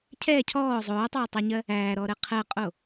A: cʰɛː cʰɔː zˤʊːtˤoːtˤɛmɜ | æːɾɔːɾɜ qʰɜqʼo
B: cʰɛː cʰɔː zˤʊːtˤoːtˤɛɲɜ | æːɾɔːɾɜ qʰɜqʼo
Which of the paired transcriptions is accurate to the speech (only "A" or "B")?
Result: B